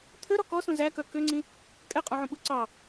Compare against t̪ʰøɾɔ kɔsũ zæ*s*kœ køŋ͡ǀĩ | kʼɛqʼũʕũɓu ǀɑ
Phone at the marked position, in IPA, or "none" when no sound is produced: none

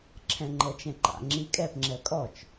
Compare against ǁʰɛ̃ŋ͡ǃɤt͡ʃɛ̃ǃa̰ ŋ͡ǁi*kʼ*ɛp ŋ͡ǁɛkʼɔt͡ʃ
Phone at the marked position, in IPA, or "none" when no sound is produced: kʼ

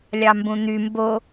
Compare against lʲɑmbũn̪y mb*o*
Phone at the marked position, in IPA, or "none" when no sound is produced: o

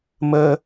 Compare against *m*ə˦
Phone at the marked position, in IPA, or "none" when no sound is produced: m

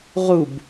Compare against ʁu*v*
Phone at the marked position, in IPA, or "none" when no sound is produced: b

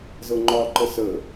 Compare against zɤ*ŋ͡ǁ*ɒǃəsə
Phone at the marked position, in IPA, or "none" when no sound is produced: ŋ͡ǃ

